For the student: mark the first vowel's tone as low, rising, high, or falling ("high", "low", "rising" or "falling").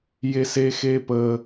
high